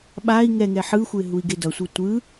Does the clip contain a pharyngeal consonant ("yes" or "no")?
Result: yes